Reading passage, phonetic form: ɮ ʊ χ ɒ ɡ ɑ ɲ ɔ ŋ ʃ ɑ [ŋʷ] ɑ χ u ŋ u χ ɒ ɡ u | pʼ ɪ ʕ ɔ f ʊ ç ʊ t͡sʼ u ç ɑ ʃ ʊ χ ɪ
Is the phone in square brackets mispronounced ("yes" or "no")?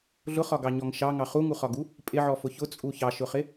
yes